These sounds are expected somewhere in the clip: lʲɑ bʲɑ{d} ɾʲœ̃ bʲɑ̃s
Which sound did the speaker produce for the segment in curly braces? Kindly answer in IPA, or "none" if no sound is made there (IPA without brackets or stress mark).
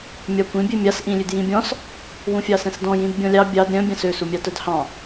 d